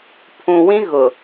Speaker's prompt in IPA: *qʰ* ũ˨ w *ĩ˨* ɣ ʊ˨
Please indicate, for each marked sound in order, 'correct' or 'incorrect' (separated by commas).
incorrect, incorrect